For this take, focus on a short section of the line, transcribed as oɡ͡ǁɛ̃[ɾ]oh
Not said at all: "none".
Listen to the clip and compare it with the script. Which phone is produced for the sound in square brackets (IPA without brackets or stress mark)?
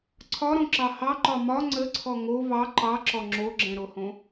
ɾ